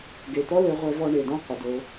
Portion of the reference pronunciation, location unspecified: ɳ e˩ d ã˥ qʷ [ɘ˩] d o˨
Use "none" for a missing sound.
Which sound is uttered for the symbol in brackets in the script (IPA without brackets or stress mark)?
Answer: ɘ˩